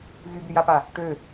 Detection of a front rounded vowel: present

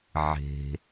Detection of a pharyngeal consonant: present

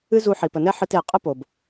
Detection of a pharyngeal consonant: present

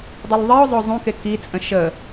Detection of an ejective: present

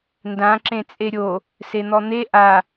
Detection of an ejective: present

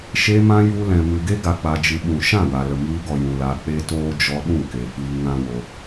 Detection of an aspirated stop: absent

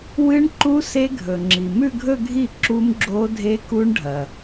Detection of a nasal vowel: absent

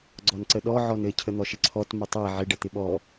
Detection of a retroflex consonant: present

